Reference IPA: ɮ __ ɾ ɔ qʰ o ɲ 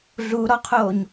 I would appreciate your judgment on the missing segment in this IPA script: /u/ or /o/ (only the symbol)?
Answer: u